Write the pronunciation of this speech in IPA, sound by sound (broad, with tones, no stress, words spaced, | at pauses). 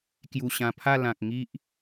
kju˨˩ɕã˨˩pʰa˥˧ lã˨k̚ ŋi˦ʔ